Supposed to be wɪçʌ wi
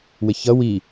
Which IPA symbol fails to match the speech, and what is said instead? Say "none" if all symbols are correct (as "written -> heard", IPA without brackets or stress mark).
none